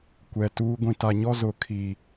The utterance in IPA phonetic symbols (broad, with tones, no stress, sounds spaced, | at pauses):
kʷ ɛ˨ t uː˦ ɡʷ ĩ˨ t a˨ ɲ ɔ˦ z ʊ˨ kʰ i˨